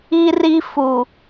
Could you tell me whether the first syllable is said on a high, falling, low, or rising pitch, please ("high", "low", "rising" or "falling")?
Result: high